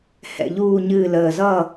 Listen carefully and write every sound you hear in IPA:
hɛ̰˨˩ ʎuː˨˩ɲɨː˨˩ ləː˨˩zʌː˦˨

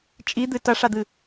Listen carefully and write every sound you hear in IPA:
t͡ʃʼid̪ɨ tɐʂad̪ɨ

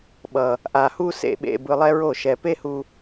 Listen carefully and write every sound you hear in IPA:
ɓʌ˨ | ʔa˨hu˦sḛ˨ ɓḛ˨ bɯ˧lˠɛ˦ɹo˦˨ ʃɛ˨pe˦ hu˧

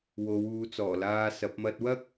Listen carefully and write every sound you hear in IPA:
wo˨˧wuː˨˧ t͡sɔː˨˩laː˧sɐ˨˥p̚ mɐ˧t̚wɐ˥k̚

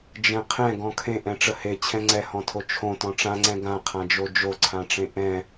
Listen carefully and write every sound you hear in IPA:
d͡ʒɛ̃qʰɛ̃ɡɔ̃ kʰẽ ʔɛ̃ʈ͡ʂəhe t͡ɕʰɛ̃ŋ͡ǀɛhɔ̃tʰo t͡ʃʰõ tɔ̃ʈ͡ʂãŋ͡ǀɛ̃ ɡãqʰãd͡ʒo d͡ʒoǀʰãʈ͡ʂẽ ʔɛ̃

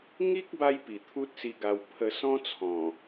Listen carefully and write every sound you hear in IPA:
ŋi˦k̚ba˧j pi˨˩t̪ʰu˦t̚si˧ɡa˧w pʰə˧sɔ̃˦t͡sʰɔ̃˨˩

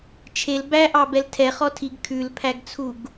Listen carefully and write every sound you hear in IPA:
t͡ʃʰel bæʔɑbɛl tʰɛ χɔtʰiɡ kʰʉlpʰæɡt͡sʰuɡ

